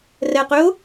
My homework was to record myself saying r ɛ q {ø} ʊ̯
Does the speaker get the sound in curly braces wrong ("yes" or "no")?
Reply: no